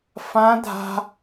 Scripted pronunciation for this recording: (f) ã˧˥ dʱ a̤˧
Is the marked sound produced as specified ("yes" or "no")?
yes